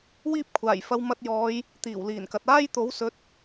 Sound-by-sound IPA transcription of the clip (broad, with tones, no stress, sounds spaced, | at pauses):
w iː˥ p̚ kʷʰ aː˨˩ j f ɐ˧ w m ɐ˧ t̚ j ɔː˨˧ j | t̪ iː˨˩ w l iː˨˩ n k ɐ˨ t̚ aː˥ j t̪ o˨˥ w s ɵ˨˥ t̚